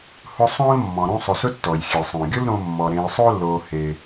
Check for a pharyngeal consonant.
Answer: absent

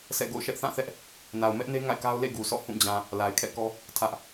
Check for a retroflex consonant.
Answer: absent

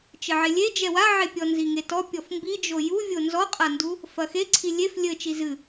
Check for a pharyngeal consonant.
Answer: present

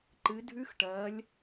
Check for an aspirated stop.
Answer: absent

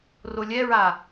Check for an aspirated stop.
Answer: absent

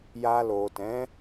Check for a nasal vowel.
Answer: present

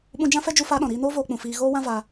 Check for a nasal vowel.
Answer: present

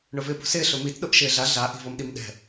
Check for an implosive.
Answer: present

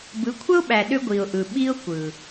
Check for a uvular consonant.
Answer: absent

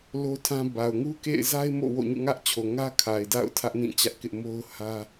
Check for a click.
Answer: absent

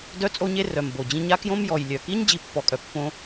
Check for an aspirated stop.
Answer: absent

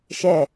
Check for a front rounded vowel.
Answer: absent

